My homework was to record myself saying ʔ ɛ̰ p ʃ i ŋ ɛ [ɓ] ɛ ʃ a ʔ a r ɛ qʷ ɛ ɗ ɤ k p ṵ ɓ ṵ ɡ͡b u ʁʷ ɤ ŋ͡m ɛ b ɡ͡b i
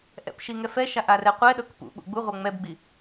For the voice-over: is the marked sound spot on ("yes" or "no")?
no